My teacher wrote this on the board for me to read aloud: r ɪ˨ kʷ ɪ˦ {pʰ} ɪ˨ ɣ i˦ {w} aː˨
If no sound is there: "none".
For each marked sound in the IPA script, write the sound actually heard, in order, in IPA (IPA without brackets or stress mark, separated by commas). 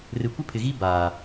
pʰ, b